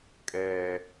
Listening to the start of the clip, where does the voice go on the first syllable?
high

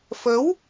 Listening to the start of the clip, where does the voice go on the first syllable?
rising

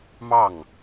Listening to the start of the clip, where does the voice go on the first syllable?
falling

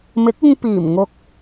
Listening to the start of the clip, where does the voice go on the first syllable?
rising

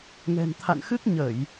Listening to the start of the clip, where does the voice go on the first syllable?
low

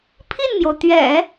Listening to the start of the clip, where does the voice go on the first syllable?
falling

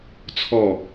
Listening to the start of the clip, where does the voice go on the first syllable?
falling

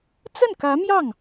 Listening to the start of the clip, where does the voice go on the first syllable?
falling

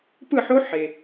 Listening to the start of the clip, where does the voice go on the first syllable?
falling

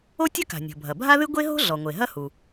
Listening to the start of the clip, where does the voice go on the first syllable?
high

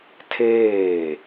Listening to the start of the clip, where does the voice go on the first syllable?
falling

